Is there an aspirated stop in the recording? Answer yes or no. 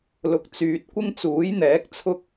yes